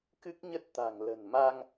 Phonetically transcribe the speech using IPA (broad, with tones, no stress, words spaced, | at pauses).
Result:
kɨ˦˥k̚ɲə˦˥t̚t̪a̤˨˩ŋ lə̤˨˩nma˧ŋ